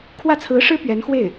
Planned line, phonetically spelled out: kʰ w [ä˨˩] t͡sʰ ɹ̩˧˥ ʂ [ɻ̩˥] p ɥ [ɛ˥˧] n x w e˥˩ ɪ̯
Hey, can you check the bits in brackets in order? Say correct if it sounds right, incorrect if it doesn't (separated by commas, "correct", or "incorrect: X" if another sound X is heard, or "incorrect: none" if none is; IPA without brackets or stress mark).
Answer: incorrect: ä˥˩, correct, incorrect: ɛ˧˥